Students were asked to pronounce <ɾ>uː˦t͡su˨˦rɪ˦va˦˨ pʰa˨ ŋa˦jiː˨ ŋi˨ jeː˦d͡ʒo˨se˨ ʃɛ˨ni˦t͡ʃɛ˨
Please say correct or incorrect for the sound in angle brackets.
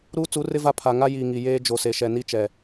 correct